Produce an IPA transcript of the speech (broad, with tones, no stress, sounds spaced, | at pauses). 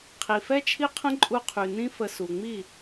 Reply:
qʰ i˨ f ɛ˦ t͡ʃʰ i˦ qʰ ə̃˦ ǃʼ u˧ qʰ y˨ n ĩ˦ f ə˧ s u˨ ŋ͡m i˦˨